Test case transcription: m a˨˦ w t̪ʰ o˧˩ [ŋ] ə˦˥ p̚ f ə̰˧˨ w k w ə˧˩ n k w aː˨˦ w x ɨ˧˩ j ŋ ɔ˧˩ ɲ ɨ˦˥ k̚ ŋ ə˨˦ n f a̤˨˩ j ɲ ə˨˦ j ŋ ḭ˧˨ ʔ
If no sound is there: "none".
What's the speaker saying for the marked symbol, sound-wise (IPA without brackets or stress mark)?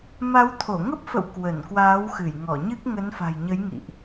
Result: ŋ